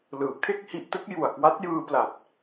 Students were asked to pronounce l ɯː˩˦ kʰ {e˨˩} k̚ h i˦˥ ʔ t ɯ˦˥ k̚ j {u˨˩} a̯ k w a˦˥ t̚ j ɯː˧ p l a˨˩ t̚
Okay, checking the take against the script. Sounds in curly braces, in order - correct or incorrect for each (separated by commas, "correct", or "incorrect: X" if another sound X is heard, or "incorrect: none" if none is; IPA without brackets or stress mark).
incorrect: e˥˩, correct